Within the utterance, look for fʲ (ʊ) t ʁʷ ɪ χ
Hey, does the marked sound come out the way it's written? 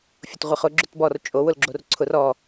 yes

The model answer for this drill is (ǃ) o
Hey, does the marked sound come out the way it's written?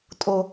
no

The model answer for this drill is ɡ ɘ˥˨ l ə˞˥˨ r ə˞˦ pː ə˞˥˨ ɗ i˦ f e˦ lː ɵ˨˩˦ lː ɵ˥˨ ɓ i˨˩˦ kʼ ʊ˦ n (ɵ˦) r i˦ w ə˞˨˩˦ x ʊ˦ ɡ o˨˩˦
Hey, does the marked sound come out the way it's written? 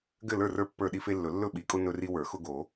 yes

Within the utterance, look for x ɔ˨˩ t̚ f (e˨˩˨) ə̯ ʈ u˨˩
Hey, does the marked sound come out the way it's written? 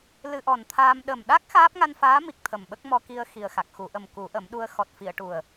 no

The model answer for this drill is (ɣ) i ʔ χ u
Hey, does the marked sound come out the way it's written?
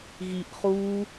yes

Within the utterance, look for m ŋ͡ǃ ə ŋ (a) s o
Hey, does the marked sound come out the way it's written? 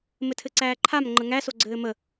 no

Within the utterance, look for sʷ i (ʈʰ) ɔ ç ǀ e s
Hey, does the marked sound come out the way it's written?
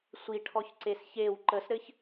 yes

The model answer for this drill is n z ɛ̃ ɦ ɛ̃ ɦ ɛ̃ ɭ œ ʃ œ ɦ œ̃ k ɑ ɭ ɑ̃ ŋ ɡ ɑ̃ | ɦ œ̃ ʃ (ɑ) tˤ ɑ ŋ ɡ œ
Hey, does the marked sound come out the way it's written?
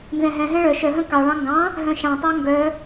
no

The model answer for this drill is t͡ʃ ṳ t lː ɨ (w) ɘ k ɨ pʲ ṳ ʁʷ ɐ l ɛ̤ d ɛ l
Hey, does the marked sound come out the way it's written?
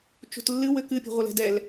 yes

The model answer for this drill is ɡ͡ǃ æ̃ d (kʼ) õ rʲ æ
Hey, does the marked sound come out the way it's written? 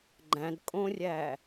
yes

